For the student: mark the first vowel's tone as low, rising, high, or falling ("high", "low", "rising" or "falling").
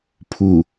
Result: low